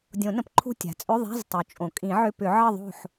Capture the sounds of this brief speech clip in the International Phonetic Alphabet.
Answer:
dʲ õ˨˩˦ n ə̃˩ p ǃʰ ṳ˦˨ tʲ a̤˩ t͡sʼ ʏ˧˥˧ ðˤ a̤˧˥˧ z tˤ u˩ t͡ʃʼ õ˩ kʼ ĩ˨˩˦ ʕ ʏ˧˥˧ p ʏ˨˩˦ ʕ ə˦˨ ðˤ o̤˦˨ ħ

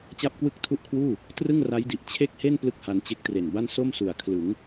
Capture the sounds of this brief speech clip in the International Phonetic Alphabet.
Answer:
t͡ɕ a˥˩ p̚ k w ɯ˥˩ k̚ tʰ u˥˩ ʔ kʰ w uː˥˩ | t r ɯ˥˩ ŋ r a˦˥ j d i˨˩ ʔ t͡ɕʰ e˥˩ k̚ h e˥˩ n p l ɯ˥˩ k̚ h a˧ n t͡ɕ e˦˥ k̚ t r e˨˩ n b a˥˩ n s o˥˩ m s u˨˩ a̯ kʰ l ɯ˩˦ ŋ

